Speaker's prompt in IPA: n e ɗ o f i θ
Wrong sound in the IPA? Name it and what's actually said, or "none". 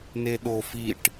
θ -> ʈ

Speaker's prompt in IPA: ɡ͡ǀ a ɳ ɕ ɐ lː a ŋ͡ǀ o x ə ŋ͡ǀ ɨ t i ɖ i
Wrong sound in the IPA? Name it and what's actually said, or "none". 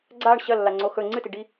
ə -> ɵ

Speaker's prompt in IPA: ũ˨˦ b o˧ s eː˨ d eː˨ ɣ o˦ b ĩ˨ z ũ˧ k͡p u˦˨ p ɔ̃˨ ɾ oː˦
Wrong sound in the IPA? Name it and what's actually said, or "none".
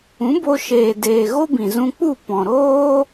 s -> ʃ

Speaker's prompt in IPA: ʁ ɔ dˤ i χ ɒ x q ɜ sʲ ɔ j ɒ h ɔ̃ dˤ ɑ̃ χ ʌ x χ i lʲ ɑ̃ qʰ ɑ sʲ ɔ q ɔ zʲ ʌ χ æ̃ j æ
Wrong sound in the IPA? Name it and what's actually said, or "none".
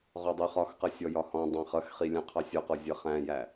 none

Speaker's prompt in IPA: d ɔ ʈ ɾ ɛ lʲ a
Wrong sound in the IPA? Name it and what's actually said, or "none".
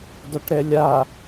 none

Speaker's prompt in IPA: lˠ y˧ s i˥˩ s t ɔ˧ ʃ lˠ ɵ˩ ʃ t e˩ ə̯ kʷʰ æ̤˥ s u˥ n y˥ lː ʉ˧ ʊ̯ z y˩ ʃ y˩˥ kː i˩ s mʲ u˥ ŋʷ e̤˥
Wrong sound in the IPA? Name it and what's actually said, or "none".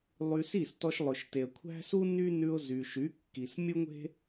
lː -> n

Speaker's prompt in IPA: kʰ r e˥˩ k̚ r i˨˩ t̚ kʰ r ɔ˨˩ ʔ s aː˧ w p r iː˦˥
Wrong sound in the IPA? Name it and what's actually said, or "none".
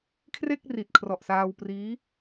none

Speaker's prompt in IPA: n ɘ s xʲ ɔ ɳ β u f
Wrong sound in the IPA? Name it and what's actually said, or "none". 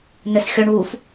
none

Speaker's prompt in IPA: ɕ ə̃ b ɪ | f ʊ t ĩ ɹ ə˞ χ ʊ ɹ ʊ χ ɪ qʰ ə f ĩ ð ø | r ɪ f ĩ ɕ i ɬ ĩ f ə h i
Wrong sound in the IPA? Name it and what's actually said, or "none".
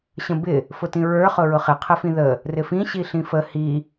ø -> ə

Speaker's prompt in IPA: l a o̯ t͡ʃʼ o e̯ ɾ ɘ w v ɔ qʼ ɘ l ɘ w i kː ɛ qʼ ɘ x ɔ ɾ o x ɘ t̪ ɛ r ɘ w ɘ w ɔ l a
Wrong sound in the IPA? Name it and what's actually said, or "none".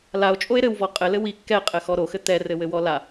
none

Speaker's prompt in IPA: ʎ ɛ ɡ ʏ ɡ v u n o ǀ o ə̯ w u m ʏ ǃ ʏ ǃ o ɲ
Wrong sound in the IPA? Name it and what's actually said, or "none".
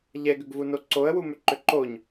none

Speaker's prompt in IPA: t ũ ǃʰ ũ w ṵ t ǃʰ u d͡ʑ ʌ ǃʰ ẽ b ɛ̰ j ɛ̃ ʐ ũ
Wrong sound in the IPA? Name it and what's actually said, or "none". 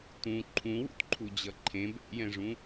none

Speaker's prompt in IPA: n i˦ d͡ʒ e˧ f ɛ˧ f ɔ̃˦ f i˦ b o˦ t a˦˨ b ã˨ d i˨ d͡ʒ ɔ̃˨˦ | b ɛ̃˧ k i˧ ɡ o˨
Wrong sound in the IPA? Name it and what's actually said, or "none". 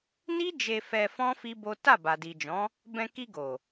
ã˨ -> a˨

